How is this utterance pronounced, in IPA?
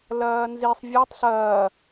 l ɐː n z i sˤ vʲ ɘ tˤ ɬ ɐː

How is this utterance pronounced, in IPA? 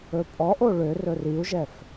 ɵ pʼ ɔ ʔ o ɭ ø r ɵ r i u̯ ʒ ɛ f

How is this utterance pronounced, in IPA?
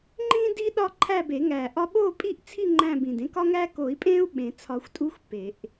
ŋ͡ǃ ĩː˦ d iː˦ ɗ ɒ˦˨ ǃʰ æ˦˨ b e˨˩˦ ŋ æ˨˩ ʔ ɒ˦ ɓ oː˦˨ pʼ i˦˨ ʔ t͡sʰ i˦˨ ŋ͡ǃ æ̃˦˨ b ĩ˨˩ d ẽ˦ k ɒ˦ ŋ æ˦ k o˨˩˦ i̯ pʼ ẽː˦ u̯ ɓ ẽ˨˩˦ t͡sʰ ɒ˨˩˦ xʷ tʼ u˦ xʷ p e˨˩˦ ʔ

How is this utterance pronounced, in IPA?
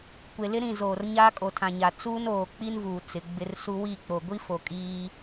kʷ e˨ l ɪ˦ ɾ ĩ˦˨ z oː˨ r ɲ aː˦ kʼ o˨ tʰ ã˨ ɲ a˨ t͡s uː˦ n oː˨ k͡p i˦ n v uː˨ t͡s ɪ˨˦ ɡ͡b ɪ˦ r s u˦ w i˦˨ k͡p o˨ ɡʷ i˦ f o˨ kʼ iː˦

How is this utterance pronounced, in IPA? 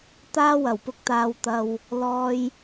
t̪ aː˥ w ɐ˨˩ w p ʊ˧ k̚ t̪ aː˨˧ w t̪ ɐ˨ w | l ɔː˧ j

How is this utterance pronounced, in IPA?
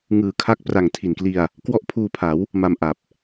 ŋ ɯː˨˩ kʰ a˦˥ k̚ p r a˨˩ ŋ tʰ i˨˩ n k l i˧ a̯ | k w ɔ˥˩ ʔ pʰ uː˧ pʰ a˩˦ w | m a˧ m ʔ a˨˩ p̚

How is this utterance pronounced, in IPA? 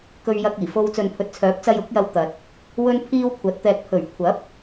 k ɵ˧ ɥ j ɐ˧ k̚ iː˨˩ f o˧ w t͡s ɵ˨ n pʰ ɵ˨ t̚ t͡sʰ œː˨˥ p̚ t͡s ɐ˧ j ʊ˨˥ k̚ j ɐ˧ w t̪ ɐ˨ t̚ | w ɵ˥ n pʰ iː˥ w kʷʰ ɐ˨˥ t̚ t̪ ɛː˧ k̚ pʰ ɵ˨˩ ɥ kʷʰ ɐ˨˥ p̚

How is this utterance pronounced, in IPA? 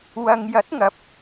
w ɐ˨ ŋ j ɐ˨˥ t̚ ŋ ɐ˨˥ p̚

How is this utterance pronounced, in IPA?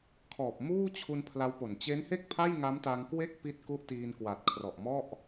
kʰ ɔː˨˩ p̚ m uː˥˩ t͡ɕʰ u˧ n pʰ l a˦˥ w p o˨˩ n t͡ɕ e˦˥ n h e˥˩ k̚ pʰ a˥˩ j ŋ a˦˥ m t a˧ ŋ k w e˥˩ k̚ p i˦˥ t̚ k u˦˥ ʔ t iː˧ n k w a˨˩ t̚ kʰ r ɔ˨˩ ʔ m ɔ˥˩ ʔ

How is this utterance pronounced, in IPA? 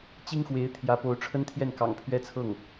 t͡ɕ i˥ ŋ x w e˧˥ ɪ̯ t̪ʰ j ä˧˥ p o˧˥ ʊ̯ ʈ͡ʂʰ ə˥ n t̪ʰ j ɛ˥˩ n k ɑ̰˨˩ ŋ pʰ ɥ ɛ˥ t͡sʰ ɤ˥˩ ŋ

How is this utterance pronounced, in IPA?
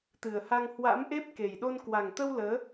t̪ ɨ˨˩ ə̯ h a˧ ŋ h w a̰˧˥ m ʔ e˦˥ p̚ k e˨˩ j ɗ o˧ n k w a˨˩ ŋ t̪ ə˧ w l əː˨˦

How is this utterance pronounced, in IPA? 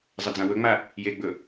zˤ ə d͡z ã w ɵ ŋ͡m a | j e ɡ͡b ɵ

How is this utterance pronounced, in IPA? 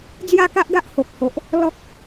d͡z j a˥˧ k a˦ ʔ ɡ a˦ ʔ h o˨ k̚ h o˨ ʔ | l ɔ˦ k̚

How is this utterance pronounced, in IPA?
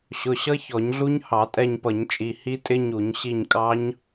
ɕ ʊ˩˧˩ ɕ ʌ˦˥ ç ɔ˧˩˧ ɲ ɮ u˦˥ ɲ h ɑ˧˩˧ tʼ ɛ˦˨ ɲ p ʌ˧˩˧ ɲ t͡ʃʼ i˩˧˩ h i˦˥ tʼ ɪ˦˥ ɲ u˧˩˧ ɲ ɕ i˦˨ ɲ kʼ ɑ˦˥ ɲ

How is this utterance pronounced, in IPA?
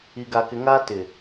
i˨ ɡ a˨ k ɪ˨˦ ŋ a˦ t ɪ˨

